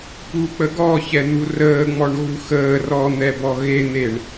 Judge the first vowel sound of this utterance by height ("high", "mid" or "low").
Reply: high